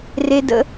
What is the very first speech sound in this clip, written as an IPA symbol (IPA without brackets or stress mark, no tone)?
r